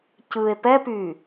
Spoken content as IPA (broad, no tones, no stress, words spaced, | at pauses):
cɯe̯ pɛpyː